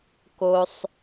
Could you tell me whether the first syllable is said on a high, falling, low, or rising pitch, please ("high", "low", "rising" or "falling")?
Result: low